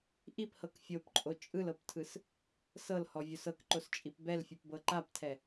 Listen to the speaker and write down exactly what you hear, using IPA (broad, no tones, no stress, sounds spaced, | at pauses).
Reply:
ʔ i p h ɤ k fʲ o p ǃʼ o t͡ʃʼ ɯ l ɤ p tʰ ɯ s | s ɤ l h ɔ vʲ o s ɤ k ǃ o s t͡ʃʼ i p b ɛ l fʲ u p b ɤ ǃ a p tʰ ɛ